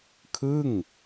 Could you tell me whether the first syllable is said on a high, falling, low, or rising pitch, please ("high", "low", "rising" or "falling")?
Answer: falling